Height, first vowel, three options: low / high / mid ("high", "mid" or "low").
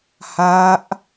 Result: low